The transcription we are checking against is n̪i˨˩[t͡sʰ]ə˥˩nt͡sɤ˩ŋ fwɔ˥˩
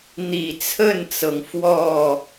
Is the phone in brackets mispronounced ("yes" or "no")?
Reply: no